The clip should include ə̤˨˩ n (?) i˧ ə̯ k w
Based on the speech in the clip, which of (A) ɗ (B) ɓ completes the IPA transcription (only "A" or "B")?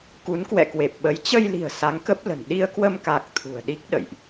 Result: A